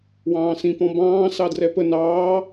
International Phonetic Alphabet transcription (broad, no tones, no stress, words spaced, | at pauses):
wɑ̃ːsĩ pɔ̃bɑ̃ː sɑdrɛpə nɑː